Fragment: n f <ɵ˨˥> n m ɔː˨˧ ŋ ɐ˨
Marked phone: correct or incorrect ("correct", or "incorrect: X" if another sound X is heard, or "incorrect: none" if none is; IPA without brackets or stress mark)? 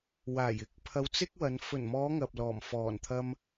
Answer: incorrect: ɵ˨˩